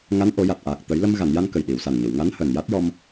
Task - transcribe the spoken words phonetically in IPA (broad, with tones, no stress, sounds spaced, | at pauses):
ŋ a˧˥ n ʔ o˨˩˦ j a˨˩ t̚ ʔ aː˨˩ k̚ t̪ ə˨˩˦ j l ə˧ m ɣ a˨˩˨ n j a˧ n k ə˨˩ j ɗ i˨˩˨ w s a˨˩ n ɲ ə˨˩˨ w ŋ a˧˥ n h əː˨˩ n j a˦˥ t̚ j ɔ˧ m